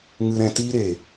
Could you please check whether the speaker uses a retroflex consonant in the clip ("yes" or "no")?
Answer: no